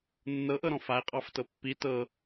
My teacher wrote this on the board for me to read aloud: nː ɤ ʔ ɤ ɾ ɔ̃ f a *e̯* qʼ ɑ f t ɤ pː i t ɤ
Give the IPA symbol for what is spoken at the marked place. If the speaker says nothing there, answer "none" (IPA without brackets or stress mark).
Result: e̯